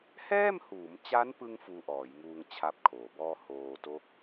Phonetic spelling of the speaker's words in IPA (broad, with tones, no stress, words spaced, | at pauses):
hɛː˥˩mhuː˩˦mt͡ɕa˦˥npɯ˧ŋ fuː˧ʔɔː˩˦jŋuː˧ŋ t͡ɕʰa˦˥p̚kʰoː˩˦bɔː˥˩ hoː˧to˦˥k̚